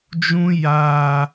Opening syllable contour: high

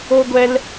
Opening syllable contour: high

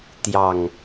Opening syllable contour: low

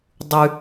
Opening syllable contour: high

